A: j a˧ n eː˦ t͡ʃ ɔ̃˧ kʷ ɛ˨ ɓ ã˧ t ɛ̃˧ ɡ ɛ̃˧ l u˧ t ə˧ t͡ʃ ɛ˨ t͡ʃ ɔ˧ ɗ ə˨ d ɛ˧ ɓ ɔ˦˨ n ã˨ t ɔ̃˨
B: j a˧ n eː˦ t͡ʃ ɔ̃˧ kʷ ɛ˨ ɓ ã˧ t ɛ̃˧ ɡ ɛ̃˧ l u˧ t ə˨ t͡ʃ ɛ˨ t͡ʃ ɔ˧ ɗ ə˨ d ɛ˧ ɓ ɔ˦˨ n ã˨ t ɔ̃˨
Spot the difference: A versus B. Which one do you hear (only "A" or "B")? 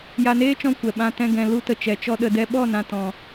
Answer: B